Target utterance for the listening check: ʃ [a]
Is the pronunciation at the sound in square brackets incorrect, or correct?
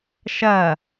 incorrect